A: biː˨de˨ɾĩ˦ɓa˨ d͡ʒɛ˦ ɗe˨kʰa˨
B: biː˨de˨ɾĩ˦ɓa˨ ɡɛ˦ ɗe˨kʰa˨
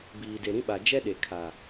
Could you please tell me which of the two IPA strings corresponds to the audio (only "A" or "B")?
A